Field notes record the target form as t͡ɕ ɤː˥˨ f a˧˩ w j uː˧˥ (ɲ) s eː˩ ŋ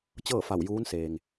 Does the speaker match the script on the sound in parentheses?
no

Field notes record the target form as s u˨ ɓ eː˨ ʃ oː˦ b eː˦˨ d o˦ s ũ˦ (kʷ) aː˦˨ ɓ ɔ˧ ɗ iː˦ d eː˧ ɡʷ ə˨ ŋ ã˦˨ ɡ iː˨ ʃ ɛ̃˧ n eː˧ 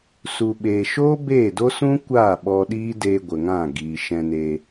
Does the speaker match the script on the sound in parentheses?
yes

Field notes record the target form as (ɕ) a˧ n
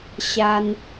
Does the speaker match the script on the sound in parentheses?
yes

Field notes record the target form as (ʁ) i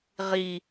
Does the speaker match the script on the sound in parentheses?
yes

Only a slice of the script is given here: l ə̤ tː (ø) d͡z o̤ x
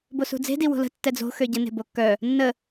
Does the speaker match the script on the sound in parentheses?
no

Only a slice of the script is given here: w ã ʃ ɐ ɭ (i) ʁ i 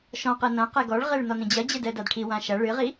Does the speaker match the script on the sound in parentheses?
no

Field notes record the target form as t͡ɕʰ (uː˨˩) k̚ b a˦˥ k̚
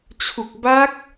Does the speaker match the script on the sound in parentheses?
no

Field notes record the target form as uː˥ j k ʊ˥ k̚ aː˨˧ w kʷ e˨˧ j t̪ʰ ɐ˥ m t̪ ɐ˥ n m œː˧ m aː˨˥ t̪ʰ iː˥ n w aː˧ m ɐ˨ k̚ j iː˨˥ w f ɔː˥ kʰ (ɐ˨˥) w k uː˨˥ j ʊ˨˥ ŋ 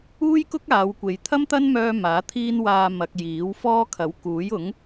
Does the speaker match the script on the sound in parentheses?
yes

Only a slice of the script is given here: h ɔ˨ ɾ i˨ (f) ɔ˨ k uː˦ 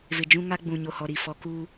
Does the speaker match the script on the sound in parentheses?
yes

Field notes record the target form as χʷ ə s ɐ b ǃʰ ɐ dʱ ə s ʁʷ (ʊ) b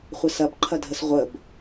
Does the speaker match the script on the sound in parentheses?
no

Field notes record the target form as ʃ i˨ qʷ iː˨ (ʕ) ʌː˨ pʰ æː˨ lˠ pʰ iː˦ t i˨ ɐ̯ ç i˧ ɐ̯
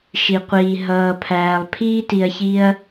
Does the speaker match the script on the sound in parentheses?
no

